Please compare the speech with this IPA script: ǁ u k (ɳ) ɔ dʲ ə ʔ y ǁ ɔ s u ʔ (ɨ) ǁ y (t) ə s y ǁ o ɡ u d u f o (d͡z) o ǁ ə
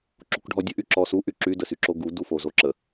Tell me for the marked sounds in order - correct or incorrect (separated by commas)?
incorrect, incorrect, incorrect, incorrect